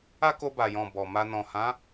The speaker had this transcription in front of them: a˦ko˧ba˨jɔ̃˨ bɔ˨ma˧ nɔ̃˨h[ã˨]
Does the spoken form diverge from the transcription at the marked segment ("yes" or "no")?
yes